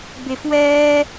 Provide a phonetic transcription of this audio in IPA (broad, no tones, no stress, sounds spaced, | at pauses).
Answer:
b e f w ɛː